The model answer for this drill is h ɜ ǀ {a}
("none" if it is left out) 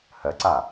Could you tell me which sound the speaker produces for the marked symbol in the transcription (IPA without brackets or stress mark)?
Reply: a